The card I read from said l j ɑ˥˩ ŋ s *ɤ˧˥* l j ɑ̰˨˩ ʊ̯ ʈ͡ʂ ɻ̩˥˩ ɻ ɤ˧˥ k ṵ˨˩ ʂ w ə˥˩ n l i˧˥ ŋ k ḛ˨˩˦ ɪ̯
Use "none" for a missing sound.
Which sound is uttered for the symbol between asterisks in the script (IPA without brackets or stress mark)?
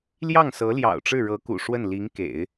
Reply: ɤ˧˥